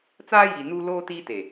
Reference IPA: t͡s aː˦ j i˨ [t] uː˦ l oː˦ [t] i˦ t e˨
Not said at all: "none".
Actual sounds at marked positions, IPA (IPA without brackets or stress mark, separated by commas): n, t